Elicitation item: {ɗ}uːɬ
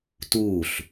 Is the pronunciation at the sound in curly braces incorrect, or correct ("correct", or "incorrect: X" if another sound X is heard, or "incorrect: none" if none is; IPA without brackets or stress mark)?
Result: incorrect: t